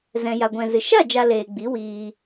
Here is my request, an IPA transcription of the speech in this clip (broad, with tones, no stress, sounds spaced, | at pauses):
z ɛ̃˨ j a˨ ɡʷ ɛ̃˨ z ɨ˨ ʃ a˦˨ d͡ʒ a˨ l eː˨ ɡ͡b i˨˦ w iː˨